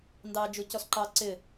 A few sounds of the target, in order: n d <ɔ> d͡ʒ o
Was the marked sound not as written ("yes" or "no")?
yes